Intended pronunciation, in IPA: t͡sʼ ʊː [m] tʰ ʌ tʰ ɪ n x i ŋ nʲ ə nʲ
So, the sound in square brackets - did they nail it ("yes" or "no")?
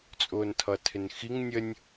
no